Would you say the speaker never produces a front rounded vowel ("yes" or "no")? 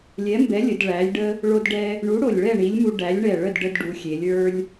yes